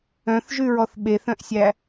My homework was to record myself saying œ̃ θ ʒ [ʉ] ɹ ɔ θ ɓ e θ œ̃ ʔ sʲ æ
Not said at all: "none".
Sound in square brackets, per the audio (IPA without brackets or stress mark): ʉ